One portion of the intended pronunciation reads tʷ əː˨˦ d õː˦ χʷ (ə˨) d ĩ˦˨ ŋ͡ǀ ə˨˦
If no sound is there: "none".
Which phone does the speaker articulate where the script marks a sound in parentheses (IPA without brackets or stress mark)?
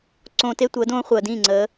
əː˨